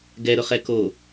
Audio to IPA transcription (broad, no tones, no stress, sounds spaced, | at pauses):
ɡ ɛ ɾ ʊ χ ɛ k o